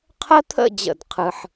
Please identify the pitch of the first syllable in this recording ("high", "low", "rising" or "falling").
high